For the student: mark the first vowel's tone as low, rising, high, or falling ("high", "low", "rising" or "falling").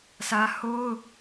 high